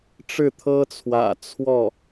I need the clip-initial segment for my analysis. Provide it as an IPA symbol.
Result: ʈ͡ʂ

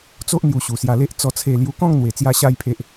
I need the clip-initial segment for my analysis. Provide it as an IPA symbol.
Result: t͡s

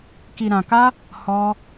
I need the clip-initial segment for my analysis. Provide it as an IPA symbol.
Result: k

